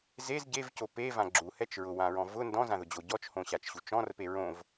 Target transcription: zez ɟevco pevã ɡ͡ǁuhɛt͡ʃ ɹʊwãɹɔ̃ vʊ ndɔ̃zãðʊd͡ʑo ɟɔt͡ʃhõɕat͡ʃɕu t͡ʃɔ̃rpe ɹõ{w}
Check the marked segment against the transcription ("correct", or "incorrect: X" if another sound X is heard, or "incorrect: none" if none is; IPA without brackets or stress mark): incorrect: v